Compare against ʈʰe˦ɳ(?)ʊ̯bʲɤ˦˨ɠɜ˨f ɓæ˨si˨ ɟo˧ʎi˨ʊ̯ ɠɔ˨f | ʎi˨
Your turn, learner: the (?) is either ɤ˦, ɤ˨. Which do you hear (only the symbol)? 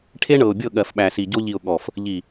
ɤ˨